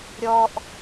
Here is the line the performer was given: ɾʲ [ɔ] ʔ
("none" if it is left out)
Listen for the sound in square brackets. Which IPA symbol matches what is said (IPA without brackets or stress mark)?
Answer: ɔ